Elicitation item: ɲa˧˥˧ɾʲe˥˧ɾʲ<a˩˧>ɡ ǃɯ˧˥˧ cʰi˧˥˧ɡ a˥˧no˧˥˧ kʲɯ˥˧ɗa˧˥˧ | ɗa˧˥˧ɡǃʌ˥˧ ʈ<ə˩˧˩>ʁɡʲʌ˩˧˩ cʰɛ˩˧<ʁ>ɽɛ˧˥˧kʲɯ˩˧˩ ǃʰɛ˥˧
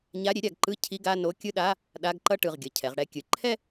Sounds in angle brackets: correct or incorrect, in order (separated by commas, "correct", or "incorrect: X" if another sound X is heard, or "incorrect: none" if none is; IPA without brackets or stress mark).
correct, incorrect: ɯ˩˧˩, correct